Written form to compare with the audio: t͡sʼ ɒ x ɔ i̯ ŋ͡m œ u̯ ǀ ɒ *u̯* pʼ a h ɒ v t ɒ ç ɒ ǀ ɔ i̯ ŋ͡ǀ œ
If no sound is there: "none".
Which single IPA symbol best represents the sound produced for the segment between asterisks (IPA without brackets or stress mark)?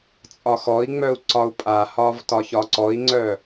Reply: u̯